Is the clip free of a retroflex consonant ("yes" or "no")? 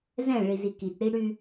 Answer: no